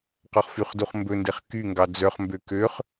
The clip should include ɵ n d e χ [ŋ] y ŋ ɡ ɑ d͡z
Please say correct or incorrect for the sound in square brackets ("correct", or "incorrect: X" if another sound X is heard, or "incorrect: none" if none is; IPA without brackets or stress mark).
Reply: incorrect: k